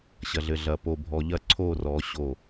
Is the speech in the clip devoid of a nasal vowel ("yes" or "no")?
yes